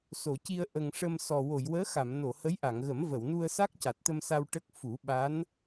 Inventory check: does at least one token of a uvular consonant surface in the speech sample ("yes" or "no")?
no